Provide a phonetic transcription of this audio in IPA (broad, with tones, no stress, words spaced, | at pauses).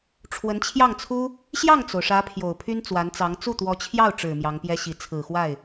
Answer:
ʈ͡ʂʰwə˧˥nt͡ɕʰjɑ˥˩ŋt͡sʰu˥ | ɕjɑ˥˩ŋt͡so˩ʊ̯ʂä˧˥ pʰjo˨˩ʊ̯pʰy˥nt͡swa˧˥nt͡sɑ˧˥ŋ t͡su˥˩t̪wɔ˧˥t͡ɕʰjɑ˥˩ʊ̯ ʈ͡ʂɻ̩˨˩ mjɑ˧˥ŋpjɛ˥ɕi˧˥ t͡sʰɹ̩˨˩xwa˥˩ɪ̯